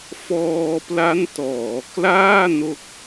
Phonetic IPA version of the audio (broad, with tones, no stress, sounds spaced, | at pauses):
f ɔː˧ p l a˦˥ n t ɔː˩˦ k l aː˥˩ n o˦˥ k̚